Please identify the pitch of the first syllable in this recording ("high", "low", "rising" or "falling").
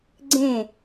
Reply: falling